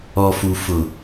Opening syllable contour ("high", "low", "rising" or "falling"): low